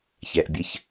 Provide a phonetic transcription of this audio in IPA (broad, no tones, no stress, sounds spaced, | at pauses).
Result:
ç ɛ ʔ bʲ ɘ ç